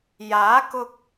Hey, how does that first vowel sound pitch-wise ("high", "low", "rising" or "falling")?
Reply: rising